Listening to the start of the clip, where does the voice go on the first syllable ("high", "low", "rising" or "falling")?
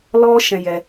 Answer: high